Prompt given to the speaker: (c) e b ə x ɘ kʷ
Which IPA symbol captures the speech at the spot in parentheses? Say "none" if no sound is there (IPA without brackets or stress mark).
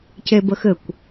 c